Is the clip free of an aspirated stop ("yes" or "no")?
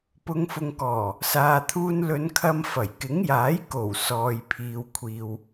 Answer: no